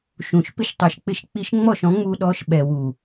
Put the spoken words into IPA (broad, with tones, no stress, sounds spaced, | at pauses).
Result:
ʃ ũ˨ ʃ p ɪ˧ ʃ tˤ u˨ ʃ k͡p ɪ˧ ʃ k͡p i˧ ʃ ŋ͡m ɔ˦˨ ʃ ɔ̃˨˦ ŋ͡m uː˧ ɗ ɔː˧ ʃ ɓ ɛ˨ w u˨